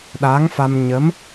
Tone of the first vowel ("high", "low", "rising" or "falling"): rising